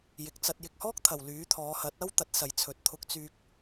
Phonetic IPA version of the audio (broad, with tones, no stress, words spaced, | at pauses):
jɪ˨k̚t͡sɐ˧t̚ jɪ˨k̚hɔː˥k̚t̪ʰɐ˨˩w lyː˨˥t̪ʰɔː˨˧hɐ˨˥t̚ɐ˥w t̪ɐ˨˥t̚sɐ˨jt͡sʰɵ˨t̚ t̪ʰʊ˧k̚t͡syː˧k̚